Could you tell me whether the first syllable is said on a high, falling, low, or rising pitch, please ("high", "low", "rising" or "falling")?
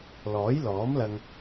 rising